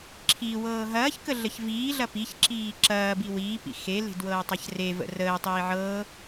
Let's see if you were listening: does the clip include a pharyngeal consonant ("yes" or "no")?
yes